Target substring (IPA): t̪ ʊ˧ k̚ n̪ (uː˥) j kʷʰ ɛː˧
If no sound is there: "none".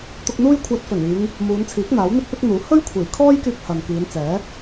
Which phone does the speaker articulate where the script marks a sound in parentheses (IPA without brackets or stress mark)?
uː˥